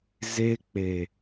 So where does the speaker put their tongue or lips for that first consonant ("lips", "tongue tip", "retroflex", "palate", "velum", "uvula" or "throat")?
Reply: tongue tip